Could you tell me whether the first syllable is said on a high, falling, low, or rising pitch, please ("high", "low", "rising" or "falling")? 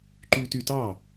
high